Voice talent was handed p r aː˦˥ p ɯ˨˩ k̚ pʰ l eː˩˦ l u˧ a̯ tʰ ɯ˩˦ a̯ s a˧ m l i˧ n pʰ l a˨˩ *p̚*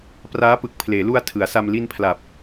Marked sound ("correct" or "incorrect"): correct